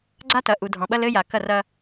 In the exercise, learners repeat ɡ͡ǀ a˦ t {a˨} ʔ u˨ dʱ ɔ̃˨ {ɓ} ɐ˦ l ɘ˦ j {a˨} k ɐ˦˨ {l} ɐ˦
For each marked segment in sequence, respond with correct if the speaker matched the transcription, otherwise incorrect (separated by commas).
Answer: incorrect, correct, correct, incorrect